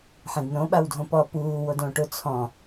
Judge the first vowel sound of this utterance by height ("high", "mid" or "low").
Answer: mid